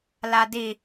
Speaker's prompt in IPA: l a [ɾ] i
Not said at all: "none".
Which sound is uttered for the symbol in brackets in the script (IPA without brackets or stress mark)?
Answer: d